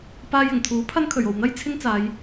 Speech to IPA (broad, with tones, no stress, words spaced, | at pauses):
paː˧jɪ˨˩ŋt̪ʰuː˨˥pʰɐ˥n kʰɵ˨˩ɥo˨wn̪ɐ˥j t͡sʰɪ˥ŋt͡saː˨˧j